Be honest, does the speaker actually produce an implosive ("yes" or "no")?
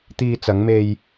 no